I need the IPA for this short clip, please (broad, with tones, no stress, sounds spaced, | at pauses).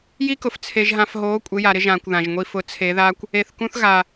j i˦ k ʊ˨ f t͡sʰ e˨ ʒ ɦ ã˨ f ɦ oː˨˦ kʷʼ ɪ˨˦ j a˨ ɾ ɪ˦ ʒ ãː˨ kʷ ð ã˨ ʒ ŋʷ i˦ f ʊ˨˦ t͡sʰ e˨˦ ð a˦ kʷ | e˨ θ k ũ˦ θ ɣ a˨